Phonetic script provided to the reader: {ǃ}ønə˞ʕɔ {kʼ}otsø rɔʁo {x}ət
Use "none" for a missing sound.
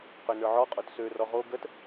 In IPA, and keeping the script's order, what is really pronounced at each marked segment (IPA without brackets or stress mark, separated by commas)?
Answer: q, qʼ, ɡ